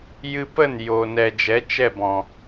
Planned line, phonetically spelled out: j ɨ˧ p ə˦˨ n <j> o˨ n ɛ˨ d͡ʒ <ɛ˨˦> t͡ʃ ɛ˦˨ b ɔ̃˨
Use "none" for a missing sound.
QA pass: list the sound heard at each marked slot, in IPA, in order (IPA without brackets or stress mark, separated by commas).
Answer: j, ɛ˨˦